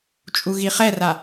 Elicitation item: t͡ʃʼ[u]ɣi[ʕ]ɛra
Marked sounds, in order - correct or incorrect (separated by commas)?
correct, incorrect